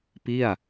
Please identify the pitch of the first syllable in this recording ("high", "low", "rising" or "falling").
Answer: falling